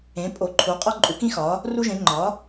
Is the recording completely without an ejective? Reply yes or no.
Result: no